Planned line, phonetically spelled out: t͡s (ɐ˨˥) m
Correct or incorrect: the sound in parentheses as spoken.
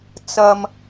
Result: incorrect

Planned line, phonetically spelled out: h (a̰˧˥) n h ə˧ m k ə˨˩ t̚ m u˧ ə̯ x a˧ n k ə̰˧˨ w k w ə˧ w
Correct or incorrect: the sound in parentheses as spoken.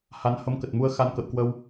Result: incorrect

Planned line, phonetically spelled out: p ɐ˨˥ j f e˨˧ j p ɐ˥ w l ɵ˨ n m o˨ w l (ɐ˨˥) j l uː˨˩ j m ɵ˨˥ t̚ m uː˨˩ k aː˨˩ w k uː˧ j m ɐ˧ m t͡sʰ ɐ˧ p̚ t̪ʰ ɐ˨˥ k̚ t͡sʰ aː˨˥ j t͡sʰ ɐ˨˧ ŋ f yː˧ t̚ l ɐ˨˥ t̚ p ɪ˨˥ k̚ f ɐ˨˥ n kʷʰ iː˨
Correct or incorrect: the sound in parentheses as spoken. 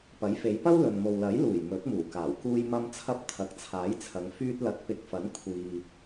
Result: correct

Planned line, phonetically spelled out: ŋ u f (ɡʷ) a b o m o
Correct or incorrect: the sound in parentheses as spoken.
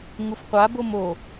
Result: incorrect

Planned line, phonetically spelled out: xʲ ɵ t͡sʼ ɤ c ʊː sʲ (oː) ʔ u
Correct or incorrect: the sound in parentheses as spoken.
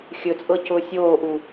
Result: correct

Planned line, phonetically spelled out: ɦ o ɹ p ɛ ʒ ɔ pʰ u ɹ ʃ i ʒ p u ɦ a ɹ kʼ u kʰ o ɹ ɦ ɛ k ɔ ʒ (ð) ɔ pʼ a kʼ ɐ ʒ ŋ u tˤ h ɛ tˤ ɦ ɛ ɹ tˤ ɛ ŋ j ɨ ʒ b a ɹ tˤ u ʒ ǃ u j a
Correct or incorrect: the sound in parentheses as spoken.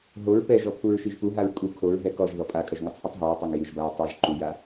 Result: correct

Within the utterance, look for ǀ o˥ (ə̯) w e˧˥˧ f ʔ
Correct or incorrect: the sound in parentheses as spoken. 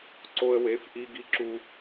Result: correct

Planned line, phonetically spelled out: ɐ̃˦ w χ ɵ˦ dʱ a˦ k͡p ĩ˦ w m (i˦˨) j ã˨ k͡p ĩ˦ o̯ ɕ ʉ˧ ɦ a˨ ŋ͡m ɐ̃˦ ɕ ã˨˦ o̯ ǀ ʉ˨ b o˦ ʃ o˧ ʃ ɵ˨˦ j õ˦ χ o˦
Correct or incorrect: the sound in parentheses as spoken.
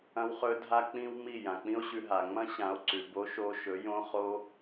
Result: correct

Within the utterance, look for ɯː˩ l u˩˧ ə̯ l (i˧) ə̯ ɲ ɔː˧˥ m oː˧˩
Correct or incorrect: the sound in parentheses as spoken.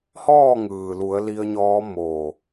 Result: correct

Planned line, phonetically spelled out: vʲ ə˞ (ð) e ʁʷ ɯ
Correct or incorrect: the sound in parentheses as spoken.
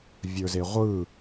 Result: incorrect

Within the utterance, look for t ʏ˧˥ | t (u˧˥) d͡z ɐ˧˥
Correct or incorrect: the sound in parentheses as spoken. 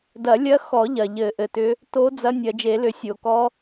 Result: incorrect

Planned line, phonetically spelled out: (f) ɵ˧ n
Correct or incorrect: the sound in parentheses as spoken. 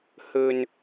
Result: incorrect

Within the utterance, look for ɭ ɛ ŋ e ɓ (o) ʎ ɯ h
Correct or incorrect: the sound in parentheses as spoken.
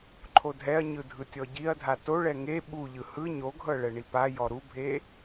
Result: incorrect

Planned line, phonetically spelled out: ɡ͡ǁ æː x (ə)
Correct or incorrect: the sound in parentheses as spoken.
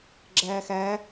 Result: incorrect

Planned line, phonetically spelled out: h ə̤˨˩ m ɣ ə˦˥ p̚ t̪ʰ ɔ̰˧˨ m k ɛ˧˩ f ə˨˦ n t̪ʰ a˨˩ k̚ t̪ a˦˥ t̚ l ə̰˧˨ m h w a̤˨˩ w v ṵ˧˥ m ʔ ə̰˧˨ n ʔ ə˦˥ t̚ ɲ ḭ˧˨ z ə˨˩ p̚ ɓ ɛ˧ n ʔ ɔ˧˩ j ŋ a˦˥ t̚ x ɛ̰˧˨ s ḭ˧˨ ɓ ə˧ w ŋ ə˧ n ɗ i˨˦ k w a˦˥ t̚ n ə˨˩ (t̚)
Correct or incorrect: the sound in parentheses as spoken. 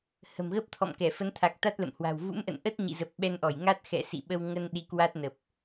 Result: incorrect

